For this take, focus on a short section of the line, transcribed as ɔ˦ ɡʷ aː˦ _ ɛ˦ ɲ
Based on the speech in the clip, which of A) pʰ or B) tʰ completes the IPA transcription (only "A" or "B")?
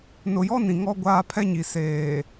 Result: A